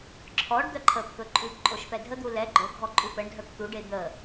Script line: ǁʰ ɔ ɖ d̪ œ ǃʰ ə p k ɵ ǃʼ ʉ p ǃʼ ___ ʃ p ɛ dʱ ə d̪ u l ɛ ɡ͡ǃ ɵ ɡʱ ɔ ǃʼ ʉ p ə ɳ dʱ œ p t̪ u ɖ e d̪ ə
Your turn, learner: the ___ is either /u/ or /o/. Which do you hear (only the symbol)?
o